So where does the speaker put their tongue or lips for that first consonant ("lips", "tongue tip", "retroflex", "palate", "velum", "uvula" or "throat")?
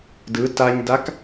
tongue tip